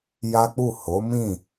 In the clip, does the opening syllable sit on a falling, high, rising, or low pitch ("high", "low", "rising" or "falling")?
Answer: high